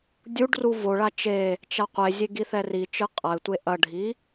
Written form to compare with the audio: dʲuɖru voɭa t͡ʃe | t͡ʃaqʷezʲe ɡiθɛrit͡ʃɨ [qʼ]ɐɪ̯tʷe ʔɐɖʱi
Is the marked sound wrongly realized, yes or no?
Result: no